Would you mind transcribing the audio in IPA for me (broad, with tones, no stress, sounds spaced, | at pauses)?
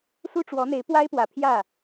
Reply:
s u˥ ʈ͡ʂ w ɔ˧˥ n̪ e˧˥ ɪ̯ p w a˥ ɪ̯ p w ä˨˩ pʰ j ä˥˩